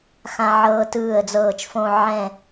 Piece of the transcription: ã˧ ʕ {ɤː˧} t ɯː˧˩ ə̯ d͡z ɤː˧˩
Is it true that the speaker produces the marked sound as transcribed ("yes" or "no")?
yes